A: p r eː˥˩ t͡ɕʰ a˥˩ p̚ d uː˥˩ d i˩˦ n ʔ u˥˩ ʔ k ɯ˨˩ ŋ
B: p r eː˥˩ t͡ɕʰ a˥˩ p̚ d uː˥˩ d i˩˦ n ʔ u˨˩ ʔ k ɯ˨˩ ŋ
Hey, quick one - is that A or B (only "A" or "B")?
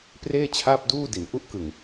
A